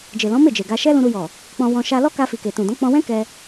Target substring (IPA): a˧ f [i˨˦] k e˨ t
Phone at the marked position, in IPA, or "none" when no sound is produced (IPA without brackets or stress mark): i˨